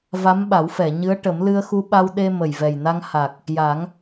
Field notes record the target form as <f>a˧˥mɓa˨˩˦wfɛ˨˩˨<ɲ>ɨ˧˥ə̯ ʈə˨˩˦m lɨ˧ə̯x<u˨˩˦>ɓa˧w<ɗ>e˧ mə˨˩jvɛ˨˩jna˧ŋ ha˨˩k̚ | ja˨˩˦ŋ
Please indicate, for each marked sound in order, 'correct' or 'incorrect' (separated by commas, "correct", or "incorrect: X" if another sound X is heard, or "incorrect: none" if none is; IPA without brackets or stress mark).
incorrect: v, correct, incorrect: u˧, correct